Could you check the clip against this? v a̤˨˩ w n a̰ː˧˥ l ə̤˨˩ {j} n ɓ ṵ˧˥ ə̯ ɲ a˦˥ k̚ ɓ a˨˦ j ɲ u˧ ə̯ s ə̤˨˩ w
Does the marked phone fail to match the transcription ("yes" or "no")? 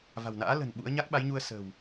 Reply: yes